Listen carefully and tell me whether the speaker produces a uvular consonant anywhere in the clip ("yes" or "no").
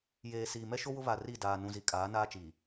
no